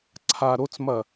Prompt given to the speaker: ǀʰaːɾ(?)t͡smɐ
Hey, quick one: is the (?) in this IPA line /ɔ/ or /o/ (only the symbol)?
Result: o